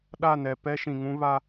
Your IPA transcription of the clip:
ɗ a˦˨ n ɛ˨ p ɛ˦ ʃ ĩ˨ ŋ ũ˦ β a˦

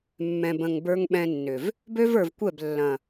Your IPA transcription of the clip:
mː ɛ̃˨ b ə̃˨ ŋ b ə˞˧ ŋ ɓ ɛ̃˧ nː ʏ˨ v | b ø˦ v ə˞˨ v kʷ ɛ˦˨ b lː ɐ̃˨

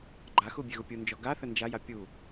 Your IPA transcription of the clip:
ɡ͡ǃ a x u bʲ e ɣ u pʲ u n d͡ʒ ɔ ɡ a θ ə n d͡ʒ a j a pʲ u

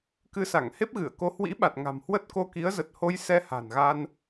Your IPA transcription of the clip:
k ɨ˧ s a˧˩ ŋ h e˦˥ p̚ ɣ ɨ˧˩ ə̯ k o˧ h w ḭ˧˥ ɓ a˨˩ t̚ ŋ a̤˨˩ m h w ə˦˥ t̚ k o˧ k i˨˦ ə̯ z ə˨˩ t̚ h o˧ j s ɛ˧ h a̤˨˩ n ɣ a˧ n

